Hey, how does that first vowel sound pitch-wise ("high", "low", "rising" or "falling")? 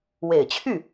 low